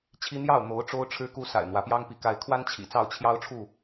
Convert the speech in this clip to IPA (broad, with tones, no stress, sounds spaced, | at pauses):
t͡ɕʰ i˦ n̪ j ɑ˥˨ ʊ̯ n̪ o˨˦ ʊ̯ ʈ͡ʂ o˦ ʊ̯ ʈ͡ʂʰ ɻ̩˦ k u˦ s a̰˨˩ ɪ̯ n̪ w ä˨˦ p j ɑ˦ ŋ p i˨˦ k a˨˦ ɪ̯ kʰ w a˦ n t͡ɕʰ ḭ˨˩ t͡s ɑ˥˨ ʊ̯ t͡ɕʰ j ɑ˦ ʊ̯ ʈ͡ʂʰ u˥˨